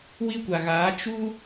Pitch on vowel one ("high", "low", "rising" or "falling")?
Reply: high